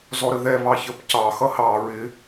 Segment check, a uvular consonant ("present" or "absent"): absent